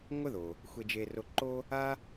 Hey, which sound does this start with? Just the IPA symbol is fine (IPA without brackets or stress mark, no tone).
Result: ŋʷ